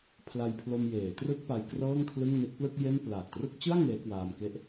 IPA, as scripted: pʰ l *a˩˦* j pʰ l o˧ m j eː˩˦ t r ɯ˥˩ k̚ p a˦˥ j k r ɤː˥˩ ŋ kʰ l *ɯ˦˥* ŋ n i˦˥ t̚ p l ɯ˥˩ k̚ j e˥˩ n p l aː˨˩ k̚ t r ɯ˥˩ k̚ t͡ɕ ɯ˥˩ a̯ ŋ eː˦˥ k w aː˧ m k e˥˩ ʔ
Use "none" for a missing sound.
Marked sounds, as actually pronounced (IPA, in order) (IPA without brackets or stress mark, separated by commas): a˧, ɯ˥˩